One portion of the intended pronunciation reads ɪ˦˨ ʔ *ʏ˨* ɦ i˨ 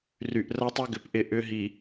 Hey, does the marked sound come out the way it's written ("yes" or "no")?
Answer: no